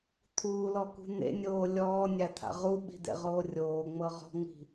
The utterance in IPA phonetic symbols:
t̪ʰ uː l ɔ k ṳ n̪ ḛ nʲ oː lʲ ɔː nʲ a t̪ʰ a̰ ʁ u ɓ i̤ d̪ ḛ ʁ oː rʲ oː ŋ͡m ɤ ʁ ɔ̤ ŋ͡m i̤

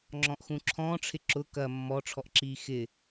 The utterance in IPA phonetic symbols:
ŋ͡ǁ ɔ̃ ʔ x ũ ǁʰ ɔ̃ː ʈ͡ʂʰ ɪ ǁ ʊ k ɐ mː ɔ ʈ͡ʂʰ ɔ ʔ ǁ iː x ɪ

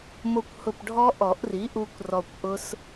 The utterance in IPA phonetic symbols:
m o˧ kʷ h ʊ˧˩ p ɖʱ ɔ˦˥ ʔ ɔ˨˩˦ ʔ r i˩˥ ʔ u˧ kʷ r ɔ˧˩ kʷ ʔ ʊ˦˥ s

